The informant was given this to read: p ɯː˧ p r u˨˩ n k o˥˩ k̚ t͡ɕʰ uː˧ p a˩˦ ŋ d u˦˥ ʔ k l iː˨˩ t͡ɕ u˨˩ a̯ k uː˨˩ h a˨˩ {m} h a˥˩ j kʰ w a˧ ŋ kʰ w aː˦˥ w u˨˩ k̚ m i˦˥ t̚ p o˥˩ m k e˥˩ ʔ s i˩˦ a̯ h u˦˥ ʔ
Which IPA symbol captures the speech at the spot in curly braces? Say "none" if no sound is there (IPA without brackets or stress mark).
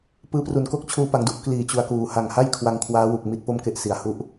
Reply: ŋ